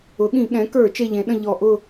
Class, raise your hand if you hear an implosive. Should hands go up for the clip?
yes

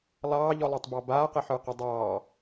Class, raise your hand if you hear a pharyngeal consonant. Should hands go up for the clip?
yes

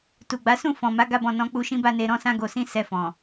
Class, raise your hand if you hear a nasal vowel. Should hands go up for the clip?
yes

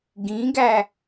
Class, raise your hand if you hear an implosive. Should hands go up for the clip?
no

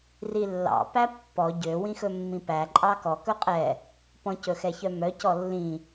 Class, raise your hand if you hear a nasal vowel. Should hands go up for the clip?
yes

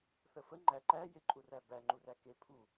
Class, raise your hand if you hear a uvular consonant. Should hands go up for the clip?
no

